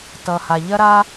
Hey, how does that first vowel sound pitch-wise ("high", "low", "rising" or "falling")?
low